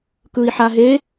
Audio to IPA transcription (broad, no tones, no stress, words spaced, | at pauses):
kɯi̯ħaɦe